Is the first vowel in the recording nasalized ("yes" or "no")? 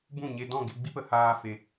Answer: yes